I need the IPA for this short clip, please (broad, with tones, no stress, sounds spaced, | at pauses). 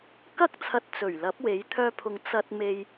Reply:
k ɐ˥ k̚ t͡sʰ ɐ˧ t̚ t͡s ɵ˨˩ ɥ l ɐ˨˥ p̚ w e˨˥ j t̪ʰ œː˧ pʰ ʊ˨ ŋ t͡s ɐ˧ t̚ m e˧ j